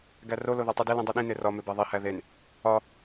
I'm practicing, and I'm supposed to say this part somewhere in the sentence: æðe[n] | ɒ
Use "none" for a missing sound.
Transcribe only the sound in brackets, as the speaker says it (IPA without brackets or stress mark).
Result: n